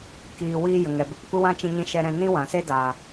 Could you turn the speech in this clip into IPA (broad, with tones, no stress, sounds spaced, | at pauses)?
k iː˨ w iː˧ j ə˨ ŋ ɛ˨ b e˧ p kʷ ɨ˦ w ã˦ t͡ʃ ĩ˧ ɲ ĩ˧ ʃ ɛ˧ ɾ ɛ̃˧ n ĩ˦ w ã˨ s e˦ d a˨